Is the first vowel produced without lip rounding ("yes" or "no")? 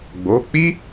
no